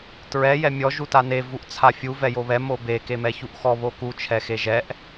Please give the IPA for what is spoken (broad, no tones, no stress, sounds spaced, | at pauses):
t ɹ ɛ j ɛ mʲ ɔ ʒ u t a n e v u ʔ t͡sʰ a fʲ u v ɛ j o β ɛ m o b e k e m ɛ ç u ʔ x ɔ β o k u t͡ʃʰ ɛ x e ʒ ɛ ʔ